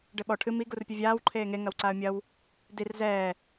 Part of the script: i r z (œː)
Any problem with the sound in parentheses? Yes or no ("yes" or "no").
yes